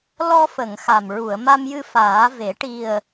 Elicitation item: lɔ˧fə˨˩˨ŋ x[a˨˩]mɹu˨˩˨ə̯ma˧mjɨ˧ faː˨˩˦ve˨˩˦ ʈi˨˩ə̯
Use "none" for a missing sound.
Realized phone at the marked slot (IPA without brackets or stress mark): a˨˩